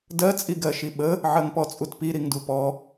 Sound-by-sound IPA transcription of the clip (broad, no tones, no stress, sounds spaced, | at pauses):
d ɜ t͡sʼ i ɡ ɜ ʃ i ɓ ə | ʕ ɜ ŋ p ɔ t͡sʼ u t p i ɾ i ŋ d u p ɔ